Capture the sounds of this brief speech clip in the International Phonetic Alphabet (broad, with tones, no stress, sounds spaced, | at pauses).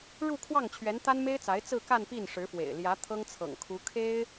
ɻ u˥˧ kʰ w ɑ˥˩ ŋ t͡ɕʰ ɥ ɛ˧˥ n t̪ a˥ n m e˥ ɪ̯ t͡s a˧˥ ɪ̯ t͡s ɹ̩˥˧ k a˥˧ n p i˥˩ n ʂ ɻ̩˧˥ f w ḛ˨˩ ɪ̯ l j ä˧˥ t̪ʰ ɤ˥ ŋ t͡sʰ ɤ̰˨˩ ŋ kʰ u˧˥ kʰ e˥ ɪ̯